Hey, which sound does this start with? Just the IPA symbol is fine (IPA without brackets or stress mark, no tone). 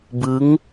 b